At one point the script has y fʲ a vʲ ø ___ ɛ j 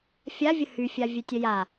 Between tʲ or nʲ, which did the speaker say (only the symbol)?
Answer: tʲ